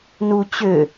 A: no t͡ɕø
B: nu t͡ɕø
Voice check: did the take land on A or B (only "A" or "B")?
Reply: B